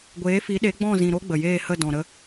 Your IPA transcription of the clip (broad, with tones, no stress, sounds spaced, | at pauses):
ɡʷ eː˨˦ f i˨˦ ɗ e˨˦ ɡ͡b ɔ̃˦˨ z ĩ˨ ɾ o˦ ɡ͡b ə˨ j eː˦˨ h ə˦˨ d ɔ̃˨ ɾ ə˧